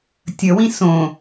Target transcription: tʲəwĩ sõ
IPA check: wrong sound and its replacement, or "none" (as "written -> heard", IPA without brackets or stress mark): none